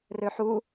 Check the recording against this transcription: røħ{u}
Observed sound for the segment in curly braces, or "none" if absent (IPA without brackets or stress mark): u